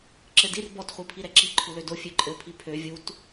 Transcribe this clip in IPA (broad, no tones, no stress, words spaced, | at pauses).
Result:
ǁɘdir bɔt χʷipʰiɾɛǁi ǃʰulødo fʲøǃʼɘ pʰipʰø vʲut